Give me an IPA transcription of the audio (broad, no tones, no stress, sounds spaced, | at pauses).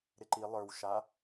ɾ ɪ ǃ i lˠ ə˞ w ʃ a